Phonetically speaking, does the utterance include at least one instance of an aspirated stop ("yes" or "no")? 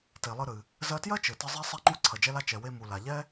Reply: yes